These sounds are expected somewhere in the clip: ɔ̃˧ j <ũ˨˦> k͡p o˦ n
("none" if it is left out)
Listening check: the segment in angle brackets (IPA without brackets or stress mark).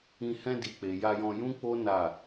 ũ˦